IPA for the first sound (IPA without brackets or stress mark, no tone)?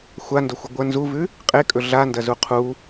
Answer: xʷ